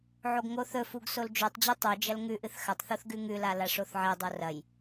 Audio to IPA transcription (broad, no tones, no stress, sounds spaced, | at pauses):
ʕ o ɡ ŋ o θ ɵ f u ɡ s o l d͡ʒ ʉ tˤ d͡ʑ ʉ tˤ ʉ d͡ʒ ɐ l ŋ ʉ ʔ ɨ θ x ɐ tˤ θ o θ ɡ ʉ ŋ ʉ l a l a ʂ o θ ʕ e dˤ o r ɐ j